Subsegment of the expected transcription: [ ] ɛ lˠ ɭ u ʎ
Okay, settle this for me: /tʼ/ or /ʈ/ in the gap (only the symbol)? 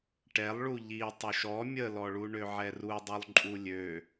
ʈ